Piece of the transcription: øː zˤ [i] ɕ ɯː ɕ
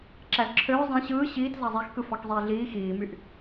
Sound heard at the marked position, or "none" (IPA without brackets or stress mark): ĩ